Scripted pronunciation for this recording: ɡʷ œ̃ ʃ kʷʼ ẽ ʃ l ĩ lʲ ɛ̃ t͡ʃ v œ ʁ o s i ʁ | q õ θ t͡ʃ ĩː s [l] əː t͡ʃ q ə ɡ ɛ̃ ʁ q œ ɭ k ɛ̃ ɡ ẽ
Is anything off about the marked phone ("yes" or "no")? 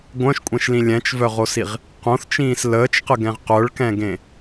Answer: no